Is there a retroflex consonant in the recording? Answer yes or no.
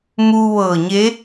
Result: no